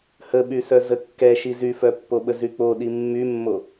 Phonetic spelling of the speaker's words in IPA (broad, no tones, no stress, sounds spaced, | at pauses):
h ə ɓ y s œ z ə kː ɛ ʃ i z y f œ pː o ɓ ə z y k͡p o ɗ i mː y mː o